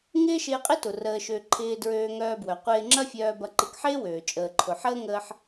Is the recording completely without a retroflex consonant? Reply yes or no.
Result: yes